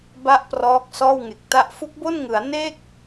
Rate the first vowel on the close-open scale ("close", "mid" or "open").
open